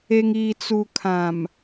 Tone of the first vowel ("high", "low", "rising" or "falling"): low